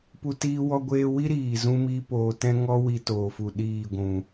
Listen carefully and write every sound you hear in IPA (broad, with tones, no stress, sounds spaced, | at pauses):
p u˦ t iː˦ w ɔ˦ ɡʷ eː˦ w i˦ ɾ iː˨ z ũ˧ m iː˦ p oː˧ t ɛ̃˦ ŋ ɔ˦ w i˧ t oː˨ f u˨ ɗ iː˦˨ ɡʷ ũ˨